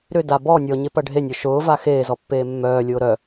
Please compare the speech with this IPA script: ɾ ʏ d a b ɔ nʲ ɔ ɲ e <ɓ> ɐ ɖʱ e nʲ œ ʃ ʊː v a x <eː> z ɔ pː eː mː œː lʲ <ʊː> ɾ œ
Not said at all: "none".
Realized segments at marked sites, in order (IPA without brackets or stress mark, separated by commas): p, eː, ʊː